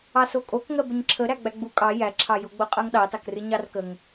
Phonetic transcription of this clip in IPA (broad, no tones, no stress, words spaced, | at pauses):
ɑsokʼok ŋɜbəɲǁʰə ɾæɡ͡bæɡ͡bu kʼɑ jæǁʰɑjoɡ͡bo qʼɜŋɗɑtɑkrɨ ɲɑrkəŋ